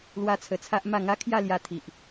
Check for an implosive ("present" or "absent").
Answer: absent